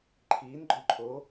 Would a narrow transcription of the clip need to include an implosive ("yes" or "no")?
no